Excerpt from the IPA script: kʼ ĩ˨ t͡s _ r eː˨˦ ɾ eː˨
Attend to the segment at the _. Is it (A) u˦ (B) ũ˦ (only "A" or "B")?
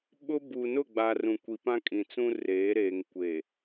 B